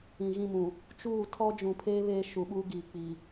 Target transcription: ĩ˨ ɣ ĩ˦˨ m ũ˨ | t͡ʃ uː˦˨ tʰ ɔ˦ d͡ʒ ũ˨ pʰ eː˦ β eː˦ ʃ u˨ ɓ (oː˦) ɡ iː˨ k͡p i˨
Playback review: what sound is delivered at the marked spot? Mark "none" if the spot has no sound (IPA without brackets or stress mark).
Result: uː˦